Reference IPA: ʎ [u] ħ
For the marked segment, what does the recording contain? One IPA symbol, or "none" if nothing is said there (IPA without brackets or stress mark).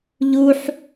u